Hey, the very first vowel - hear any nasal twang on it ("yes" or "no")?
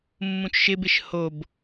yes